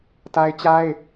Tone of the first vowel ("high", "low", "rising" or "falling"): high